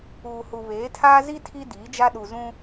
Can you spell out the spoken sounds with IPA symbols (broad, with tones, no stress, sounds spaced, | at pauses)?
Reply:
uː˨ h u˨ β eː˨˦ tʰ aː˦ z i˦ tʰ i˦ d iː˨˦ d͡ʒ a˦ ɗ u˨ z ũ˦